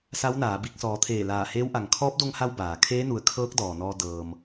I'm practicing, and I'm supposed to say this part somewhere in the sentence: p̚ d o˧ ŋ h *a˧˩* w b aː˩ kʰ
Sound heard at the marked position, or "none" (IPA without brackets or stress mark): a˧